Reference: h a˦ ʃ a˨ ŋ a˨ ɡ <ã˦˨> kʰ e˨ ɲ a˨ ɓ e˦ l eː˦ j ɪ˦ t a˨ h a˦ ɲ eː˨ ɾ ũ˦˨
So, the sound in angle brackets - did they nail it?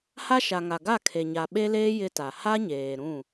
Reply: no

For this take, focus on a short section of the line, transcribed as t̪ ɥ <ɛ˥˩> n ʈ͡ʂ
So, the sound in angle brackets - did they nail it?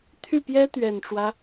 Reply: no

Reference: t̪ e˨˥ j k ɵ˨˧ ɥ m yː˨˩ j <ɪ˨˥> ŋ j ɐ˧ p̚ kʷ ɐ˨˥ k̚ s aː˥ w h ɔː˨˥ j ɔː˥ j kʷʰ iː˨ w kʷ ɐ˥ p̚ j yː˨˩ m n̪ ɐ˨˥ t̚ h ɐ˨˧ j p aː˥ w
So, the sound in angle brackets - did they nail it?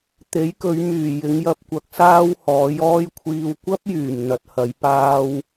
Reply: no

